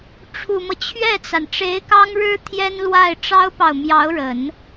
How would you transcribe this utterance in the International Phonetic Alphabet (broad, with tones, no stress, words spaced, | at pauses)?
ʈ͡ʂʰu˨˩mɤ˦ t͡ɕʰɥɛ˥˩t͡sa˩n ʈ͡ʂe˧˥ɪ̯kɑ˥ŋɻɻ̩˥ t̪ʰjɛ˥nlwa˥˩ɪ̯ ʈ͡ʂɑ˥ʊ̯pɑ˨ʊ̯mjɑ˧˥ʊ̯ɻə˨˩˦n